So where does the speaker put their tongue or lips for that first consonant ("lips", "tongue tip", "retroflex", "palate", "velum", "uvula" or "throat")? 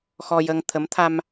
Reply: velum